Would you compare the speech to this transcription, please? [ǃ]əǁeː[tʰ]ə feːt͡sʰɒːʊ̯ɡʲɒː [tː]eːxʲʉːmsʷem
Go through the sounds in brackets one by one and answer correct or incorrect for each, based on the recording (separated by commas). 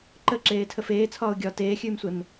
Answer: correct, correct, incorrect